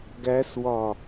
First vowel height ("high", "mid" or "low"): low